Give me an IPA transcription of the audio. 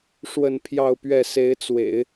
ʂ w ə˥˧ n pʰ j ɑ˥˧ ʊ̯ p ɥ ɛ˥˩ s e˧˥ ɪ̯ t͡s w ḛ˨˩˦ ɪ̯

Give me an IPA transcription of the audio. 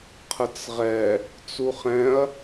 qʰ ə t͡s ʁ ɛ | t͡s u χ ɛ̃ ɐ̯

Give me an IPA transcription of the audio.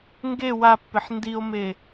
ŋ ɡ e w a pː ɪ ħ n d i o̯ m e

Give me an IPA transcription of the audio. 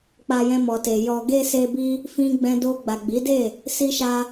k͡p a˧ j ɛ̃˧ m ɔ˨ t e˨ j ɔ˨ ɡ e˧ s e˧ b i˦ | f ĩ˧ ɡ͡b ɛ̃˧ d o˧ ɡ͡b a˨ ɡ͡b i˨˦ d e˦˨ | s i˦ ʃ a˦

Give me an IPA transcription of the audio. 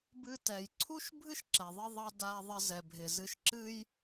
b ɨ˧ t ɛ˩ j ǀʰ u˥ ʃ bʱ ɨ˥ ʃ ǁ ɛ˩ ðˤ ɪ˧ ðˤ ɑ˧ d a˧ ðˤ ɪ˧ z ɛ˩ bʱ ɪ˩ z ɨ˧ ʃ ǁ ɨ˥ j

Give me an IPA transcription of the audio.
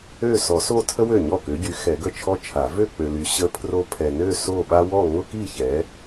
ø˥˧ s ɔ˨˩˦ s o˥˧ tʰ ə˥ w ø˥˩ ɲ ɔ˥˩ k ø˨˦ ɟ y˨˦ x ɛ˨˩˦ ɡ ə˥˩ t͡ʃʰ ɔ˥ t͡ʃʰ a˨˩˦ v ø˥˧ k͡p ø˨ l y˨ ɕ ə˥ pʰ r o˥ pʰ ɛ˨ n ø˥˧ s o˥˧ ɓ a˥ w ɔ˥˧ ŋ ʊ˥ k i˥˧ ç ɛ˨˦

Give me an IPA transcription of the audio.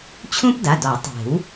t͡ɕʰ ũ˥ p d a˩˧˩ d ɔ˨˩˦ tˤ e̤˨˩˦ w

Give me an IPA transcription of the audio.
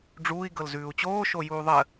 ɖ͡ʐ uː i̯ ɡ ɤ l z ʉː u̯ t͡ɕ oː ʃ o j uː ðˤ ə

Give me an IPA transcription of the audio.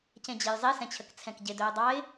c ẽ d͡ʑ e j zˤ e s ɛ̃ t͡ɕʰ ə k t͡sʰ ɛ̃ k ɟ ɪ d ɵ ʊ̯ dˤ ɑ ɪ̯

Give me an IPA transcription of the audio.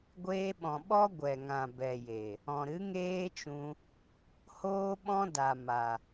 ɡʷ eː˧ ɓ ɔ̃˨ ɓ ɔ˦ ɡʷ ɛ˨ ŋ ã˨ b ɛ˨ j e˨ | ɔ̃˨ ɾ ɨ˨˦ ŋ eː˦ t͡ʃ ũ˧ | h oː˦ ɓ ɔ̃˦ d a˨ m a˨

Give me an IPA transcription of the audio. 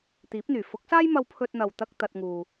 t̪ iː˨˥ p̚ n̪ yː˨˩ f ʊ˨˥ k̚ s aː˥ j m ɐ˧ w pʰ ɵ˧ t̚ n̪ ɐ˨ w t̪ ɐ˧ k̚ t̪ ɐ˧ t̚ ŋ uː˨

